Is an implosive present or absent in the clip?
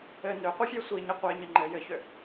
absent